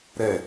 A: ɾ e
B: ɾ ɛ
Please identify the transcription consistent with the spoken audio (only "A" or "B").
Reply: B